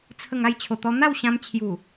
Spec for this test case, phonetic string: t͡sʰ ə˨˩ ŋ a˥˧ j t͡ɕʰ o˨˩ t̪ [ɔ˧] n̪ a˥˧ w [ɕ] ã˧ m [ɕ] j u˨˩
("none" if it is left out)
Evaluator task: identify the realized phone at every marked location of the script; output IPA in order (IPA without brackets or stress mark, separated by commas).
ɔ˧, ɕ, t͡ɕʰ